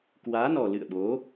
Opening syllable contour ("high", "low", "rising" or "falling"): rising